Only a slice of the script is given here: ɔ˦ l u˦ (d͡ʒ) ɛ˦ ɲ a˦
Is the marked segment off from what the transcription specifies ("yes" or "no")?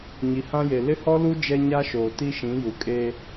no